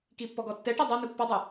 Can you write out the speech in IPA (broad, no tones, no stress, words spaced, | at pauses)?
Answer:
kipːɔ ɡɔtːɛʈi dˤanu pːɔdˤɯ